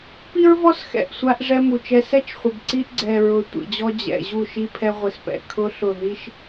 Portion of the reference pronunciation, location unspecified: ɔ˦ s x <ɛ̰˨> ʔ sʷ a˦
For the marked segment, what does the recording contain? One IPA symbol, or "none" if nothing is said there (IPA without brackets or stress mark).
ɛ̰˨